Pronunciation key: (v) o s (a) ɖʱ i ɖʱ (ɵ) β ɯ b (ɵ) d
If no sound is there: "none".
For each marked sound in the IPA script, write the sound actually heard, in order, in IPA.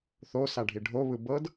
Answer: θ, a, o, ɤ

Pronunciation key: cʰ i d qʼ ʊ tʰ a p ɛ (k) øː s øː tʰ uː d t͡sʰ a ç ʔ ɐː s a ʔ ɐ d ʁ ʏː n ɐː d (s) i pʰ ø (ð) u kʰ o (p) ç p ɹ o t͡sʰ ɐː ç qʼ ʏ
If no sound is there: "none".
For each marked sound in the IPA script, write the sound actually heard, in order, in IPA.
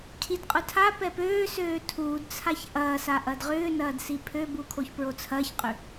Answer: p, s, b, none

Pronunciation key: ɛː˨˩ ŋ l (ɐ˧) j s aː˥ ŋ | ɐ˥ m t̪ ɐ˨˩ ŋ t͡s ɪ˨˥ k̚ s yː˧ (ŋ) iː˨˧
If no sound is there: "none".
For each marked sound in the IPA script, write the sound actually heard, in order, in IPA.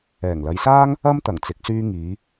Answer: ɐ˨˧, ŋ

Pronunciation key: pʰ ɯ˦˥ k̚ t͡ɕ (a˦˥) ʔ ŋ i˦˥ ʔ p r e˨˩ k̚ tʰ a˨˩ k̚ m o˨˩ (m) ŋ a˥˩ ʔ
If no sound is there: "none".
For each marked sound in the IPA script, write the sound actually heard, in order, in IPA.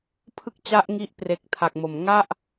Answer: a˦˥, m

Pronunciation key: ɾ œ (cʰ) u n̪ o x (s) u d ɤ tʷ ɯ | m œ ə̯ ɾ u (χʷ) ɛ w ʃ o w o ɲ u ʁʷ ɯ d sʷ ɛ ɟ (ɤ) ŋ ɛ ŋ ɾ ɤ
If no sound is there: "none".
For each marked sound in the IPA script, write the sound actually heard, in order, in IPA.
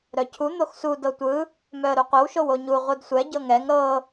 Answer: cʰ, s, qʷ, ɤ

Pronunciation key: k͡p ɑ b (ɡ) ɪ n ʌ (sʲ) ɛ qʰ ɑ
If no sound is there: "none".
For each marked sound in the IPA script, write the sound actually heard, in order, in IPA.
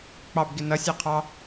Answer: ɡ, sʲ

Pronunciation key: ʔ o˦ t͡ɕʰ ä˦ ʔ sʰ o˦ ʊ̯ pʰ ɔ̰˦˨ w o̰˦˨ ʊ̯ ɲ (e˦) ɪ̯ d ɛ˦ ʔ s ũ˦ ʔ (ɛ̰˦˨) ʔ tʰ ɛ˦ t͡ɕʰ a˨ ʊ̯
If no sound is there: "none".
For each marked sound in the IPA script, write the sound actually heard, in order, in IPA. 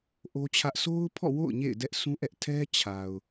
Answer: ḛ˦˨, ɛ˦

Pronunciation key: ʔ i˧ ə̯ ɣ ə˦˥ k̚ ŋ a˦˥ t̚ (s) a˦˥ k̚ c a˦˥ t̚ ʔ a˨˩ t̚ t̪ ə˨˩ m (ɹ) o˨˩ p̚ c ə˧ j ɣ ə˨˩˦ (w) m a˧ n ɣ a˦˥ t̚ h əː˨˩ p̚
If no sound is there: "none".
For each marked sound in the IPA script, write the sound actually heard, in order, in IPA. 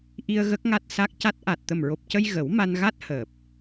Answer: s, ɹ, w

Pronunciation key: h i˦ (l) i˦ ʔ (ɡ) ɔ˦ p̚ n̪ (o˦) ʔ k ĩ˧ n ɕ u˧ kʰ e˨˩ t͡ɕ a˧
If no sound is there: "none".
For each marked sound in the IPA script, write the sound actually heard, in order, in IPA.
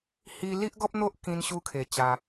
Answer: l, ɡ, o˦

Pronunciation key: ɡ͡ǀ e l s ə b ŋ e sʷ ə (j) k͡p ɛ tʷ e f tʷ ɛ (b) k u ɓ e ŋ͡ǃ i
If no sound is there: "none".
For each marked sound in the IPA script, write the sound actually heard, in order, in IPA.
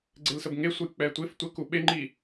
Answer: j, none

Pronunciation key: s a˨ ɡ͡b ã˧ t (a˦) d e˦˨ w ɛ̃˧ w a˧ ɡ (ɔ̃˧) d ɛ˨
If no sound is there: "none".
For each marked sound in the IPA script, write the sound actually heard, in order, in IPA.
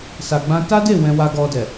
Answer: a˦, ɔ˧

